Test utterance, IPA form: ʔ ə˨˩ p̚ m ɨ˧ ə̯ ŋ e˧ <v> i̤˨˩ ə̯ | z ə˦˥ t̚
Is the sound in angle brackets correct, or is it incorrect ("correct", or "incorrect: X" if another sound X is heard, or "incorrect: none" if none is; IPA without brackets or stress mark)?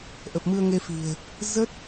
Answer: incorrect: f